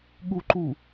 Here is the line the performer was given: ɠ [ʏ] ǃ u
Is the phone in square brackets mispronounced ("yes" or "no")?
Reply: yes